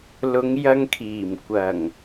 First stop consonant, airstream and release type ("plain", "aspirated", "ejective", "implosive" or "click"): aspirated